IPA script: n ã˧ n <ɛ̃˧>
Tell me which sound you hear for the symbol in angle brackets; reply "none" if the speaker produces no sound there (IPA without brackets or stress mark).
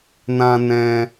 ɛ̃˧